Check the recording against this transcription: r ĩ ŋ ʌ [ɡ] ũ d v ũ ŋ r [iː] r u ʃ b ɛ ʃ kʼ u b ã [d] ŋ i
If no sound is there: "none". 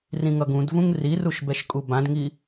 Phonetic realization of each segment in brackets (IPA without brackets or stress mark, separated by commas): ɡ, i, d